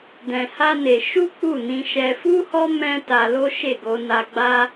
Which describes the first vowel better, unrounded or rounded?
unrounded